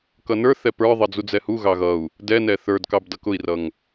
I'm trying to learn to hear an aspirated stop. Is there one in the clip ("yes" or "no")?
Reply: no